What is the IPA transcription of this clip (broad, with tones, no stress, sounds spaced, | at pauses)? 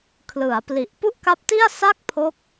kʰ l ɯ˩˦ a̯ p l i˨˩ ʔ p u˥˩ ʔ k a˦˥ p̚ t i˥˩ a̯ s a˥˩ k̚ pʰ o˦˥ k̚